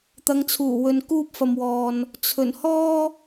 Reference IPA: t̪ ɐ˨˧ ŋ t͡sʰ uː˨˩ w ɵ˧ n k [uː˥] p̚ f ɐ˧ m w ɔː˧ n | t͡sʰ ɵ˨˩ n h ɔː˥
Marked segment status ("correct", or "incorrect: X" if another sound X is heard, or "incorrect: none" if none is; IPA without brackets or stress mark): correct